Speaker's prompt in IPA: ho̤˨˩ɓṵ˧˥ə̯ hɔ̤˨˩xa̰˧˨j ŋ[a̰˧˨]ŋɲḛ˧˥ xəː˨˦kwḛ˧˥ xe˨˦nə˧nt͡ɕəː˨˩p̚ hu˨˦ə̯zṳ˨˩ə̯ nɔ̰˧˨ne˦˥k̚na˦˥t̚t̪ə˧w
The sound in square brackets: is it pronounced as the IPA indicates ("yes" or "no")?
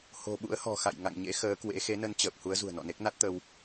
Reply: yes